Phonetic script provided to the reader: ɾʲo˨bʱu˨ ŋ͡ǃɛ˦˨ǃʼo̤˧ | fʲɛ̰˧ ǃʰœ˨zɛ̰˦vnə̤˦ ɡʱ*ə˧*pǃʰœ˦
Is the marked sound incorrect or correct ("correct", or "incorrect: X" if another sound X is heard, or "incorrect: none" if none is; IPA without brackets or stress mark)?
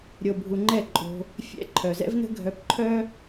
incorrect: œ˧